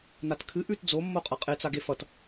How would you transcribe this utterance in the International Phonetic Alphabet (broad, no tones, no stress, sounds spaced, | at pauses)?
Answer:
n a t kʰ ɨ ʔ ʉ t d͡z o mː o qʼ ʌ qʼ e t͡s a ɡ e f ʌ t